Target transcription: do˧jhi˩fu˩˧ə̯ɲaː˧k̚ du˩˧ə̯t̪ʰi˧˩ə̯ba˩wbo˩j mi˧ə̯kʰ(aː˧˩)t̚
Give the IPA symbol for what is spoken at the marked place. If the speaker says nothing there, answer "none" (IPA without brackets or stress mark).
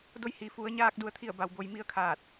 aː˧˩